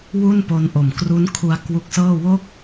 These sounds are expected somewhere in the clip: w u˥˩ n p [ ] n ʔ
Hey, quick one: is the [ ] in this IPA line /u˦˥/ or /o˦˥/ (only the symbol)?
o˦˥